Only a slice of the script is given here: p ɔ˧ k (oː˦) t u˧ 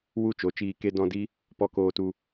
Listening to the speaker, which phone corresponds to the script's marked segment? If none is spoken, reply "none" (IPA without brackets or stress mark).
oː˧